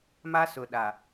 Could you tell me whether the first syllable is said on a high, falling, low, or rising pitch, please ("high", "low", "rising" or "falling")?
high